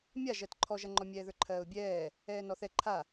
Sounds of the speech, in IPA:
mʲ a ʒ ɜ t ǃʰ ɔ ʒ ɐ ŋ͡ǃ ɔ mʲ ɛː ð ə˞ ǃʰ ɜː ʊ̯ bʲ ɛː | ɛː n ɔ θ ɛ ǃʰ a

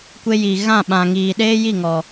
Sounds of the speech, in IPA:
kʷ e˦ j iː˨ ɣ ã˦˨ ɓ ã˨ ŋ iː˨ ɗ eː˦ j i˦˨ ŋ ɔ˨

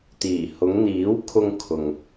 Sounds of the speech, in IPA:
t̪ iː˨˩ h ʊ˨˧ ŋ n̪ iː˨˥ w kʰ ʊ˧ ŋ kʰ ʊ˨ ŋ

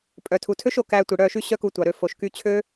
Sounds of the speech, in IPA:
pʼ œ˨ tʰ u˨ tʰ ø˦ ʃ o˨ k æ˧ tʷ i˨ ɽ œ˦˨ ʃ y˦ ɕ œ˦ k u˧ tʷ ɑ˨ ɾ ø˧ f o˨ ʃ k y˧ t͡ɕʰ ø˦

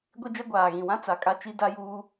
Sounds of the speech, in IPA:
ɡʷ i˦ d͡ʒ ɛ˦ ɡʷ aː˨ ɣ ĩ˨ w ã˦ t͡s a˨ kʼ a˦ t͡ʃ i˦ d a˦ j uː˦

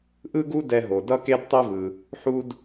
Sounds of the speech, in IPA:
ʔ ɯ˥ ɡ u˥ d ɛ˧ ɦ o˩ d ʌ˥ k e˥ d tˤ e˥ v ɯ˩ | ħ u˧ d

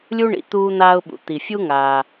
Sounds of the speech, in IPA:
lʲ u˥ ɳ ḭ˩ t̪ uː˥ n̪ aː˥ ʊ̯ ɓ ṵ˩ t̪ i˩ fʲ u˥ ŋ aː˩

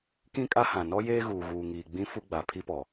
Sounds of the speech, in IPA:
k ĩ˦ kʼ a˦ h ã˨ n ɔ˦ j eː˦ ɣ uː˨ ɣ uː˨ ŋ iː˨ ɡ͡b ĩ˦ f u˦ ɡ͡b a˨ pʰ i˦ p ɔ˨

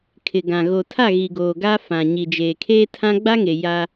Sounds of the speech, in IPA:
kʰ ɪ˨ ɡ ã˨ ɣ o˨ tʰ a˦˨ ɣ i˨ ɡ oː˨ ɡ a˦ f ã˨ ɲ i˨ d͡ʒ eː˨ kʰ eː˦ tʰ ã˦ ɡ͡b a˦ ŋ e˨ j a˦

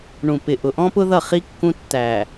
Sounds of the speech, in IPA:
ɳ ũ˨ p ɪ˨ ʔ ʊ˨ ʔ ɔ̃˦ p ʊ˦ ð ʌ˦˨ χ i˦ kː ũ˦ tː æ˨

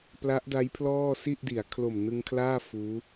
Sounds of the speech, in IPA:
p l a˦˥ ʔ d a˦˥ j pʰ l ɔː˥˩ s i˥˩ ʔ d i˩˦ a̯ kʰ l o˨˩ m n ɯ˧ ŋ kʰ l aː˥˩ f uː˦˥

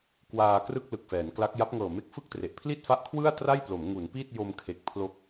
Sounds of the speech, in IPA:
k w aː˧ k r ɯ˥˩ k̚ l ɯ˨˩ k̚ f ɛː˩˦ n k l a˦˥ k̚ j a˦˥ p̚ ŋ ɤː˨˩ m e˦˥ k̚ f ɯ˥˩ k̚ t r e˨˩ ʔ pʰ l i˥˩ t̚ f a˦˥ ʔ kʰ w ɯ˥˩ a̯ t r a˥˩ j p l o˩˦ m ŋ u˩˦ n p i˥˩ t̚ j o˧ m kʰ e˨˩ k̚ pʰ l o˦˥ k̚

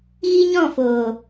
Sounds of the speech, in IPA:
ɣ i˦ ɲ ɔ̃˦˨ f oː˨

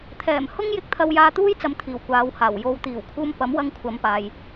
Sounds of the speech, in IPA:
t̪ʰ ɛː˨˩ m h ʊ˥ ŋ j ɪ˧ k̚ t̪ʰ ɐ˧ w j aː˧ t̪ uː˥ j t͡s ɐ˨˧ m t̪ʰ iː˨˩ w kʷ aː˨˧ w h aː˨˩ w j o˨ w t̪ iː˨˩ w kʰ uː˧ m p ɐ˨˥ m w ɐ˧ ŋ kʷʰ ɐ˨˧ m p aː˨ j

